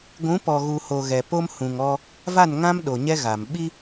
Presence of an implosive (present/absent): present